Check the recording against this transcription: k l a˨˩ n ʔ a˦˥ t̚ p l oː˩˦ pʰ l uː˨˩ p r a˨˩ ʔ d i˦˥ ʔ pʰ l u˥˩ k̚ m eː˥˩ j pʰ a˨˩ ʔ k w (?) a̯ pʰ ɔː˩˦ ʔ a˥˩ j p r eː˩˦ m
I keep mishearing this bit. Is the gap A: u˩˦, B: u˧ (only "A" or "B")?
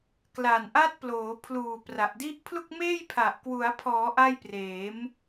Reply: A